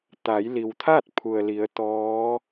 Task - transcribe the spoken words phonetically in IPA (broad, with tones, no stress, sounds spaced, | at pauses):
t̪ a˩˧ j l i˩ w t̪ʰ a˥˨ t̚ pʰ u˩ ə̯ l i˩˧ ə̯ t̪ ɔː˧˥